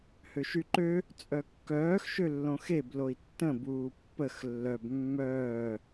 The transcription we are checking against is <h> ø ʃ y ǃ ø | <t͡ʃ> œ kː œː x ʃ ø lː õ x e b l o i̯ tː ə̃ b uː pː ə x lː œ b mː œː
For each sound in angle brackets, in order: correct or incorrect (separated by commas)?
correct, incorrect